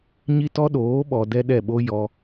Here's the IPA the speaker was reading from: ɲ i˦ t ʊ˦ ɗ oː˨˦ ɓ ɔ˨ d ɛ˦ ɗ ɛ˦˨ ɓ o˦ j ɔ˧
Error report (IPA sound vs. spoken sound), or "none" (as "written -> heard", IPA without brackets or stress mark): ʊ˦ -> ɔ˦